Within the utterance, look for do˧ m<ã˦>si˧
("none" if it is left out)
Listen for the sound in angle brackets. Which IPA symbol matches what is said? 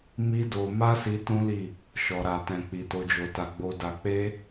a˦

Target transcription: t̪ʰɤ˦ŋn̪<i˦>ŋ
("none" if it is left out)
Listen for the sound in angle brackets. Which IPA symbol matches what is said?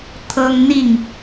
i˥˨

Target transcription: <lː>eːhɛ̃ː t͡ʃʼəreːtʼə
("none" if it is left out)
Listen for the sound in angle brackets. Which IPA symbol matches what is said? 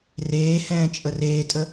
r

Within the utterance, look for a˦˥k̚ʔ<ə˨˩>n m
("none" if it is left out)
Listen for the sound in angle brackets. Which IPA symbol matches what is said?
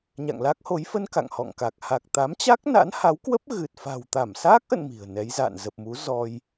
ə̰˧˨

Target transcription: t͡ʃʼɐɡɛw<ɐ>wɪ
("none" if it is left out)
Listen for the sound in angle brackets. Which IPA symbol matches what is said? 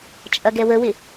ə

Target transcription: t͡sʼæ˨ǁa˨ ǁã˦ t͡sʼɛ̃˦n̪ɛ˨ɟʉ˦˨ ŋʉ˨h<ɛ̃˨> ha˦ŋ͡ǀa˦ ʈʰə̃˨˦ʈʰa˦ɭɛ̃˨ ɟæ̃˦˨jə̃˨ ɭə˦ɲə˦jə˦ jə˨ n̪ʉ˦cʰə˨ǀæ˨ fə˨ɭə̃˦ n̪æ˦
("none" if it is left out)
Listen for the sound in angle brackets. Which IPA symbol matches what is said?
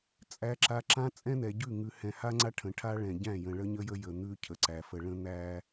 ɛ̃˨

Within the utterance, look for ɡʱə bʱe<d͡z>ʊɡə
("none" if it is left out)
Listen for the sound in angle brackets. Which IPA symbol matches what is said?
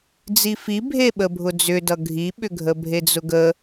d͡z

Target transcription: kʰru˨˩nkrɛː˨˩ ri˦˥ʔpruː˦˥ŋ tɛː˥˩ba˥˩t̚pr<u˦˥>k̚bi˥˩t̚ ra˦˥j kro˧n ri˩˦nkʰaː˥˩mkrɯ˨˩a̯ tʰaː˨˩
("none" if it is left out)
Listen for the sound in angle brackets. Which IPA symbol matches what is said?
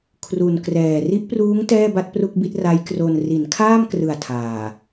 u˥˩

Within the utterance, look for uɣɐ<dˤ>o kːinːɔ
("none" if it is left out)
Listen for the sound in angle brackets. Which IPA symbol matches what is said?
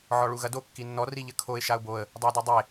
d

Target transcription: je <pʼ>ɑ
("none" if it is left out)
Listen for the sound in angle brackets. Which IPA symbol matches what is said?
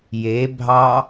bʱ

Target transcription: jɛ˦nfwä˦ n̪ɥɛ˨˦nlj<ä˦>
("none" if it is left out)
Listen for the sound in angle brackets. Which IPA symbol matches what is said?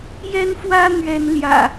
ä̰˨˩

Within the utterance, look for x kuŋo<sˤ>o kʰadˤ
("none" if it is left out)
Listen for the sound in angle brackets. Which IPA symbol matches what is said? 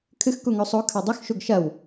sˤ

